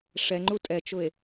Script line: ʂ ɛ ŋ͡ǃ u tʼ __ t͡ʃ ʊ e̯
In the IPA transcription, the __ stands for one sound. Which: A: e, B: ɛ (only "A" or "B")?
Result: B